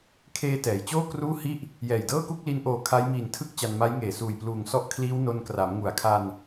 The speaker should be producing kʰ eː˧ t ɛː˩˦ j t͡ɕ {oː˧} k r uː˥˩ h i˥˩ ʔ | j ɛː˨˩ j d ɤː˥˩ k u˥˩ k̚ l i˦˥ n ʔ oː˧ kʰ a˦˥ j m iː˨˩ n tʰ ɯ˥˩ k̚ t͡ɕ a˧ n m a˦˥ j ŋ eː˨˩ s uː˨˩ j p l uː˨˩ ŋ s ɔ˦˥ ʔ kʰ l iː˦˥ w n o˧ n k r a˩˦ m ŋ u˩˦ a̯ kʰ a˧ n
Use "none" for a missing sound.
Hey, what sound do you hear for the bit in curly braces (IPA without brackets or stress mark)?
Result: oː˥˩